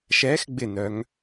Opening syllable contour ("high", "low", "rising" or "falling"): rising